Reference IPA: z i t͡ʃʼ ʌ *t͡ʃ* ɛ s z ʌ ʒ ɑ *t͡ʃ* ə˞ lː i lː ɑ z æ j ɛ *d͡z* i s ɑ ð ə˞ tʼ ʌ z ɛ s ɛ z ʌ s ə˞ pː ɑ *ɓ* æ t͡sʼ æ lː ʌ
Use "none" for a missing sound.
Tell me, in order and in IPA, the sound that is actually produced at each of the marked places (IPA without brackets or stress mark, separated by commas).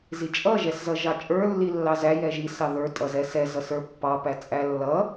ʒ, t͡ʃʼ, ʒ, p